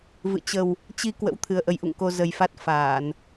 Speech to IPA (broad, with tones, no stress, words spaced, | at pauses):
vɨ̰˧˨ t͡ɕə˨˩w | t͡ɕi˧ kwə̰˧˥wt̪ʰɨ˨˩ə̯ʔə˨˦jʔṵ˧˨ŋ ko˧zə˨˩jfa˦˥t̚ faː˧˩˨n